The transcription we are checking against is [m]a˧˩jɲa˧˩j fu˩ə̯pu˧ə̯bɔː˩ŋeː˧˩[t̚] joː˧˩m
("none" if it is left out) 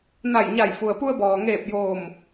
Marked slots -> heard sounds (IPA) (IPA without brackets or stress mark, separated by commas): n, p̚